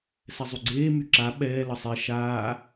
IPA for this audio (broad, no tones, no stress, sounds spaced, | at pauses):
s ɛ zˤ y ɡ͡ǀ eː m y ǁ a ɓ ɛː l ə sˤ e ʃ aː